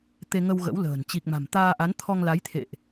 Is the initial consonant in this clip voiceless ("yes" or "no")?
yes